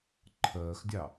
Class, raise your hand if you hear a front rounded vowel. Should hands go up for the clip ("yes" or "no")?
no